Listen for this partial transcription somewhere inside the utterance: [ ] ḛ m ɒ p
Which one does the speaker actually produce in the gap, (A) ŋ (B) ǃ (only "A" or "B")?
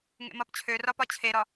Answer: A